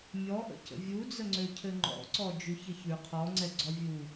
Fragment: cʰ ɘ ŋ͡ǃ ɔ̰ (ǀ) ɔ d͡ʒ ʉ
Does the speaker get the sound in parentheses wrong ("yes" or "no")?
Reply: no